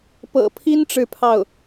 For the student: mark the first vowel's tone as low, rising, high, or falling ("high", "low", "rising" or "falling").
low